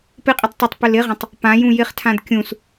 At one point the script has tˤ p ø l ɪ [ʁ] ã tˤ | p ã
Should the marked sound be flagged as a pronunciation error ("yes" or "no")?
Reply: no